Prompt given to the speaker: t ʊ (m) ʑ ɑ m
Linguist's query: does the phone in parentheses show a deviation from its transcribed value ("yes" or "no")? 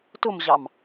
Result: no